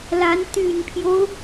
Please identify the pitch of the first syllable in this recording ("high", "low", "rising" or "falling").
rising